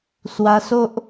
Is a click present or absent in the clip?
absent